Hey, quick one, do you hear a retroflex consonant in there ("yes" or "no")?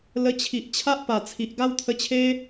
no